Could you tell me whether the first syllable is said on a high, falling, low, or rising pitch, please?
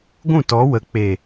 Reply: falling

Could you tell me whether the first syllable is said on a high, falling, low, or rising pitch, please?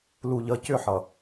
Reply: low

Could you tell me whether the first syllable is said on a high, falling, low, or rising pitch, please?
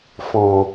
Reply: low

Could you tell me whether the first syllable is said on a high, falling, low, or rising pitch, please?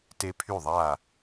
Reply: high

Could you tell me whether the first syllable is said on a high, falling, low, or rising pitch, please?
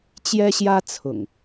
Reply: high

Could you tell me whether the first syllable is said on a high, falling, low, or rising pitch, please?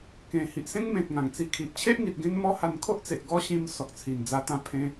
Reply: low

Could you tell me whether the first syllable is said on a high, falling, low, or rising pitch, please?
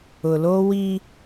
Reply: low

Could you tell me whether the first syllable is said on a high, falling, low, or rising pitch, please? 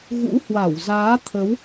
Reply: rising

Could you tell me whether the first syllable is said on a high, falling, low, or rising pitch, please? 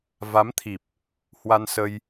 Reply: rising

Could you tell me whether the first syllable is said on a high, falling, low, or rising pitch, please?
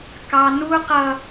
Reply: high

